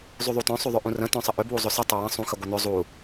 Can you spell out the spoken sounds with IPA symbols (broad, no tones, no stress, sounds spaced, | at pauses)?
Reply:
zˤ y ðˤ u t œ̃ sˤ y ðˤ ʏ ʔ ũ r ə̃ t œ̃ sˤ ə ʔ ʏ b w u zˤ ʏ s ə tˤ ʏ w ə̃ sˤ ũ x ə ɡʷ ə n ʏ zˤ u